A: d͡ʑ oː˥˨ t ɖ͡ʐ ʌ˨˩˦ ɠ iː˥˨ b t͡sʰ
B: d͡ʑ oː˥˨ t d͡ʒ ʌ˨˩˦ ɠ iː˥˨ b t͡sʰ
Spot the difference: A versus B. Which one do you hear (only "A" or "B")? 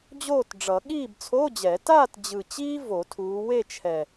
A